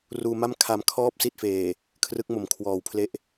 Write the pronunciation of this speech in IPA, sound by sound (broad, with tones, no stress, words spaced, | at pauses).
ruː˧ma˥˩m kʰa˧mkʰɔː˥˩p̚ si˥˩t̚feː˨˩ | kʰrɯ˦˥k̚mo˨˩mkʰwɔː˩˦wpʰle˦˥ʔ